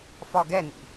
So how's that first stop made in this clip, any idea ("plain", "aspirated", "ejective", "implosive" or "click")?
plain